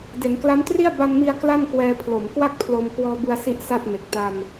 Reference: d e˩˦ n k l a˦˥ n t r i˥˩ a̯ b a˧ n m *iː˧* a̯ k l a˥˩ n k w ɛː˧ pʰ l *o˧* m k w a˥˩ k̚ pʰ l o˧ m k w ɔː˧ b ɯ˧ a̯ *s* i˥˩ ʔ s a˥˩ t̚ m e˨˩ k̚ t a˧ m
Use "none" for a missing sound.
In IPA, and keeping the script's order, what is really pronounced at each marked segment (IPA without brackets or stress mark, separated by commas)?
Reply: i˧, o˩˦, s